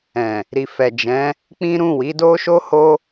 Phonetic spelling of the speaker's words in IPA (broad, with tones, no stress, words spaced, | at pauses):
ɛ̃˨ | ɾi˨fɛ˨d͡ʒɛ̃˨˦ | k͡pĩ˦ ɾũ˦˨wi˨˦do˦ ʃo˦ho˦